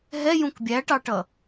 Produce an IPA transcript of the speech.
ɦ ɛ j ũ k bʲ æ ʈ ɑ ʈ ʌ

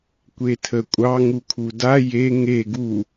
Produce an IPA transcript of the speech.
kʷ e tʰ ə kʷʼ ɑ ŋ u kʰ u d a j e ŋ e ɡ u

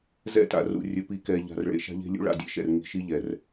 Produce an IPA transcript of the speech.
z ɛ̰˦ t a̰˨ r ṵ˨ rʲ ɵ˨ p i˨ k ɛ˨ ʎ a̤˨ r ɭ ḛ˨ ʃ a̤˦ ʎ e̤˦ lʲ ṵ˦ ɭ a̰˨ dʲ ḛ˦ ʃ ɛ̰˨ r ŋ i̤˨ ʃ i˦ ʎ ɛ˨ r

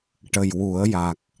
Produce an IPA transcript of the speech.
ʈ ə˨˩ j w u˨˩˦ ə̯ j a˨˩ k̚

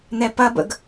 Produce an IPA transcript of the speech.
n̪ ɛ p ɐ b ə̰ ɡ

